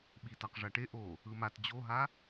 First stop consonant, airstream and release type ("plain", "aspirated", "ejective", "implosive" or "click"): implosive